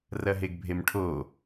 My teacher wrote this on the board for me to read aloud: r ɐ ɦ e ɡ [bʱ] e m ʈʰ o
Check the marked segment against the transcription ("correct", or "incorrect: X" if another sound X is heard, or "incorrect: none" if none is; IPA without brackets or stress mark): correct